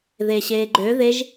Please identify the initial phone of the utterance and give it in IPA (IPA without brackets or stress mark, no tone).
ð